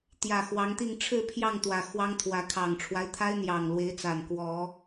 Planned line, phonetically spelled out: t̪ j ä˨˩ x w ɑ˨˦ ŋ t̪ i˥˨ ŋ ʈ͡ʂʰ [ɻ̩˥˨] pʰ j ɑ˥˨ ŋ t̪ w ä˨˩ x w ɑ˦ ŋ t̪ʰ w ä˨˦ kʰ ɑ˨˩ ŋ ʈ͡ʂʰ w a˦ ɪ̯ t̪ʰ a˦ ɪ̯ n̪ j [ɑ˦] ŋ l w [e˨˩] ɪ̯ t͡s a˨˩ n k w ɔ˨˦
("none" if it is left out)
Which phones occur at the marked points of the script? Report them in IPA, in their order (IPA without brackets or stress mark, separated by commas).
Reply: ɻ̩˥˨, ɑ˨˩, e˨˦